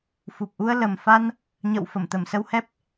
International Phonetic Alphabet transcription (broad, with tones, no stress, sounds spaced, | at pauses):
f u˨˩ p̚ ʔ u˧ ə̯ l ə˨˩ m f a˧ n | ɲ ə̰˧˨ w f ə˧˩ m t̪ ə˧˩ m s ə˧ w h ɛ˦˥ p̚